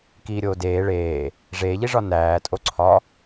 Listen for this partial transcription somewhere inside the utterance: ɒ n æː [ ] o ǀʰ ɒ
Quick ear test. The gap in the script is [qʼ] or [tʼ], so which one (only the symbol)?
tʼ